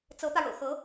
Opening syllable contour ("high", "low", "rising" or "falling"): rising